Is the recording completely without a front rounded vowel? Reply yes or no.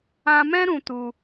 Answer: yes